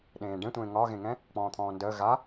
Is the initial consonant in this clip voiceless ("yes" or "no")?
no